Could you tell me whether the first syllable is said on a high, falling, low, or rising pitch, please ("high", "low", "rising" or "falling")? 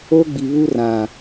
high